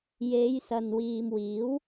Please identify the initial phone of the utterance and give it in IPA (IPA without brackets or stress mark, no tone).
j